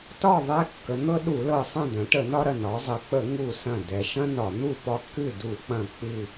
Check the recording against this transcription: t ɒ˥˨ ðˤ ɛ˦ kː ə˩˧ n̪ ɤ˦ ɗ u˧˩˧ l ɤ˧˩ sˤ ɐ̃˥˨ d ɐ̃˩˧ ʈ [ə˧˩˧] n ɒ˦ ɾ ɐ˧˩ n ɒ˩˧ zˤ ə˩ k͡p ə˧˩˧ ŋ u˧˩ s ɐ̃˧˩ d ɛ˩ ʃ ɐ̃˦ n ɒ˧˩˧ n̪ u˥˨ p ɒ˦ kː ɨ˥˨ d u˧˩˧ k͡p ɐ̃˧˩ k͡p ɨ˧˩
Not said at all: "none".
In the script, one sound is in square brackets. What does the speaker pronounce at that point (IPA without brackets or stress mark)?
ə˧˩˧